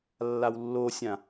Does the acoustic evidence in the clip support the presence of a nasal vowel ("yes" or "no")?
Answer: yes